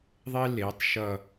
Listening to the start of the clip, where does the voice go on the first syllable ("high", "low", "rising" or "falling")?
high